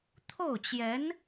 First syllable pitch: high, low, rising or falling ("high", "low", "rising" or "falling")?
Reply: falling